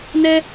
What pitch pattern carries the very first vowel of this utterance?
high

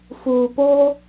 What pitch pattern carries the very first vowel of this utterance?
low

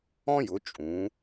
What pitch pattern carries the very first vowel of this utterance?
high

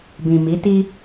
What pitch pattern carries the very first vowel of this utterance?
low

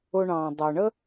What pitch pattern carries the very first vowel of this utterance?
low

